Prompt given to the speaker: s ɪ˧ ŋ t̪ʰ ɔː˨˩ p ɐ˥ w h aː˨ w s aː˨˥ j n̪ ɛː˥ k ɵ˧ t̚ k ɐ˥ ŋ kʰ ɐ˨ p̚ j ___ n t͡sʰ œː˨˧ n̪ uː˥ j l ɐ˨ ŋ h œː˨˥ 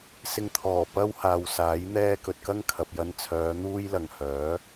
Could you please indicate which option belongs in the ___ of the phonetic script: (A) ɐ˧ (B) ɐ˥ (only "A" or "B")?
A